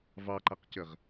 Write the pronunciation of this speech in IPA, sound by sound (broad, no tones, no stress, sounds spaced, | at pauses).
v ɑ ǃ a q c ə ʁ